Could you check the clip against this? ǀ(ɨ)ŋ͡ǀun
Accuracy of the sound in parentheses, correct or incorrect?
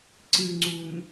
correct